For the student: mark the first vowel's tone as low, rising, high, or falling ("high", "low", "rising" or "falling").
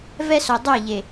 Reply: high